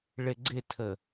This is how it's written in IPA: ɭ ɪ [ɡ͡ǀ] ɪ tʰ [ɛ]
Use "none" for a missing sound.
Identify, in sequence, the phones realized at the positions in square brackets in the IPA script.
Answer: ɡ͡ǀ, ə

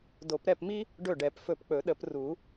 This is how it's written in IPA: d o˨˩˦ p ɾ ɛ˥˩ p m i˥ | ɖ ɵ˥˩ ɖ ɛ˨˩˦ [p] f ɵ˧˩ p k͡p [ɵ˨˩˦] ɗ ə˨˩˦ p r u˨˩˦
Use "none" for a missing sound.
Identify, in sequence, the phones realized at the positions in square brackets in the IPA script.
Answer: p, ɵ˨˩˦

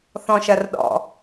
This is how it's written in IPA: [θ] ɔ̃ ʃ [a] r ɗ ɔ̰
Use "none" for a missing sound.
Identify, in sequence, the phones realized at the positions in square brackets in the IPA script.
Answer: θ, ɐ

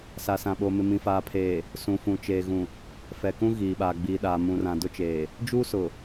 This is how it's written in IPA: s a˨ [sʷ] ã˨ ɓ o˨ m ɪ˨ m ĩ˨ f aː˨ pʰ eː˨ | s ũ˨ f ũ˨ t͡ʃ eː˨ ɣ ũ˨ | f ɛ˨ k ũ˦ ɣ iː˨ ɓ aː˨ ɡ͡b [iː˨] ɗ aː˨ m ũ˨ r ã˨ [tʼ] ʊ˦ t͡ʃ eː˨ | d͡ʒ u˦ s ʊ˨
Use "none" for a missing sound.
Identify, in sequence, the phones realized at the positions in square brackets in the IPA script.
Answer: s, iː˨, d

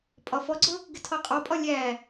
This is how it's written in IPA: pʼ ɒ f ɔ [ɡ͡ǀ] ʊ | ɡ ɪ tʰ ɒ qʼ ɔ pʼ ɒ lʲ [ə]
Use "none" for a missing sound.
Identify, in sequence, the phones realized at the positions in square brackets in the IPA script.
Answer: ɡ͡ǀ, æ

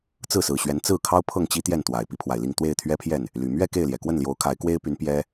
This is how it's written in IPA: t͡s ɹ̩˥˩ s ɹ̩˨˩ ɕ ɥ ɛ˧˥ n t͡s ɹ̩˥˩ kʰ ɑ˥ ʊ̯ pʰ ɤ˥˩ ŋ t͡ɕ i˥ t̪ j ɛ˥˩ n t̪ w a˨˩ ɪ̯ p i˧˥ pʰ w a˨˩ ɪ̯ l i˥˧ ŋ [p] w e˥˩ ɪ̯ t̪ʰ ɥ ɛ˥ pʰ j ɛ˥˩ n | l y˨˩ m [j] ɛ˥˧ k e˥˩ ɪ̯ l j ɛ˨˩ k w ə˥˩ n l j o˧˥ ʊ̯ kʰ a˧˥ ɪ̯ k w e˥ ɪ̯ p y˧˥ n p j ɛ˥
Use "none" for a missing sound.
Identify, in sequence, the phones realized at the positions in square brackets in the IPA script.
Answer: t̪, ɥ

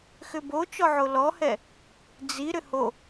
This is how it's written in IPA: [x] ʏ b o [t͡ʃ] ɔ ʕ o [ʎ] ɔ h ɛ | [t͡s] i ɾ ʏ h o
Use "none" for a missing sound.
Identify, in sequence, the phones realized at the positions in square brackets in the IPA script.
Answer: x, t͡ʃ, l, d͡z

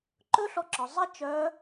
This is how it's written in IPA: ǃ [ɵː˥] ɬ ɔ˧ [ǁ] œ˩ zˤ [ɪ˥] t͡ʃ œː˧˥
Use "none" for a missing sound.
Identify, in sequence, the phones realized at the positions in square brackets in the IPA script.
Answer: ɵ˥, ǁ, ɪ˥

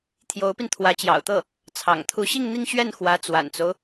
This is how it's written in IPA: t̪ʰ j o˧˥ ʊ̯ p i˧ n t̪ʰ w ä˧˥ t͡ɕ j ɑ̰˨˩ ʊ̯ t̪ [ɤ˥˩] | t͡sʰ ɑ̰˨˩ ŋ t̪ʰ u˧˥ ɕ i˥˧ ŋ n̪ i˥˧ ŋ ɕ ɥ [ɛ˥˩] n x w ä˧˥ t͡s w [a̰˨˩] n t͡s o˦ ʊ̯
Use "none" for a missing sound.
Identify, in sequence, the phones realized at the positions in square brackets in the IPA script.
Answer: ɤ˥˩, ɛ˥˩, a̰˨˩

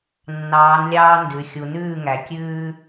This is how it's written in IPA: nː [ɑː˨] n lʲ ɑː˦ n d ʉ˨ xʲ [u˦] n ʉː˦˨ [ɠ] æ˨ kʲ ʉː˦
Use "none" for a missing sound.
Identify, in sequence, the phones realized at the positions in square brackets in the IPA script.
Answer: ɑː˨˦, u˨, ŋ

